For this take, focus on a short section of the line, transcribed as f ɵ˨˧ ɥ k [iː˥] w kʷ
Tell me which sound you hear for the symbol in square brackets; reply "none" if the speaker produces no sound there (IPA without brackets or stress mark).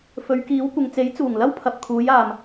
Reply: iː˨˥